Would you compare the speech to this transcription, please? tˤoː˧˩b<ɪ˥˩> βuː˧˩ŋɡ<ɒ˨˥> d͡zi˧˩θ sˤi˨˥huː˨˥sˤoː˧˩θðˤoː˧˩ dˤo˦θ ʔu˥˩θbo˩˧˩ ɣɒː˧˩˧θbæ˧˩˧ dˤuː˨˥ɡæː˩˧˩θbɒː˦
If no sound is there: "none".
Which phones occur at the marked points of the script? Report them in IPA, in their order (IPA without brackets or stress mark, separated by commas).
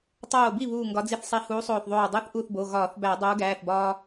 i˥˩, ɒ˨˥